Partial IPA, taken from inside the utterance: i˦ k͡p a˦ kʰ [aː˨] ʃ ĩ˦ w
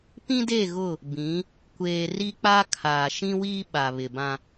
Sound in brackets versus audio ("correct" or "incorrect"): correct